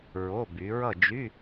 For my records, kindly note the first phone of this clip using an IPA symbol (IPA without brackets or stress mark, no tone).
ɹ